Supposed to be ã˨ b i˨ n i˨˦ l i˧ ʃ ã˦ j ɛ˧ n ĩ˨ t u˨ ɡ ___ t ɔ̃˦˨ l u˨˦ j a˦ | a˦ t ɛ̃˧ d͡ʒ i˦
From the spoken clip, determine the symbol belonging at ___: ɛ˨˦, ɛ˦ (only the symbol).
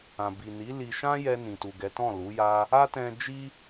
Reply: ɛ˨˦